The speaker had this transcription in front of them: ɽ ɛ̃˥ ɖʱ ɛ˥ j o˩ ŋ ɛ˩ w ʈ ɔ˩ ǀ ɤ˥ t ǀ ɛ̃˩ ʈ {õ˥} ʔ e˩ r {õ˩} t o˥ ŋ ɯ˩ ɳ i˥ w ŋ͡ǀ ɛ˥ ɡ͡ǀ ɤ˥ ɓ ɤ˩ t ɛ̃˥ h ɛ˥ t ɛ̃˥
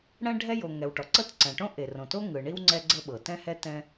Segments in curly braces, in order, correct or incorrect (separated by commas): correct, correct